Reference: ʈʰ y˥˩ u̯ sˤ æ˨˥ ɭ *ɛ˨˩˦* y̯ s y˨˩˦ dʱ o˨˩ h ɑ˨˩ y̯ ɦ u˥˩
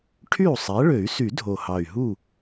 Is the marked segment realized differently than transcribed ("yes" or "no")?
yes